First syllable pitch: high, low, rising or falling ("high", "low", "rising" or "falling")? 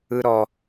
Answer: high